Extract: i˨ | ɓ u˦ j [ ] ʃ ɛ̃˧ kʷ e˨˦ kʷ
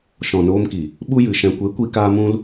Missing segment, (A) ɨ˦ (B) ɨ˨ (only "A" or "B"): B